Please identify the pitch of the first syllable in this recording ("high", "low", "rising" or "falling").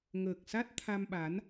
low